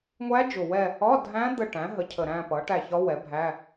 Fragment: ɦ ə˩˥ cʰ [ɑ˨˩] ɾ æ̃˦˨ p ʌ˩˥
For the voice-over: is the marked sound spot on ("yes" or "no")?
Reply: no